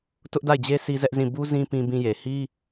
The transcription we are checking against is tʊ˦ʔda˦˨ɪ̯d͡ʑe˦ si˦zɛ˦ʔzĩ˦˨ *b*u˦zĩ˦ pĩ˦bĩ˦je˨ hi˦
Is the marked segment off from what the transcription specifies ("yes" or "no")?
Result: no